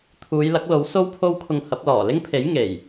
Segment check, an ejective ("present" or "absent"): absent